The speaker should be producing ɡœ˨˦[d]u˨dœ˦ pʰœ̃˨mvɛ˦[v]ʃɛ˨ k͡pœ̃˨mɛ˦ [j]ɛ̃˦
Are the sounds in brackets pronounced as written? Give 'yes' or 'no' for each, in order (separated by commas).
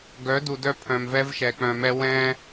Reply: yes, yes, no